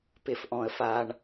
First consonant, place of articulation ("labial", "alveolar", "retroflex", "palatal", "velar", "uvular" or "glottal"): labial